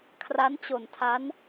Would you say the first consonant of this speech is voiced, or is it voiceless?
voiceless